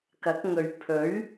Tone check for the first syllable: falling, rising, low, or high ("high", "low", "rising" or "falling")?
rising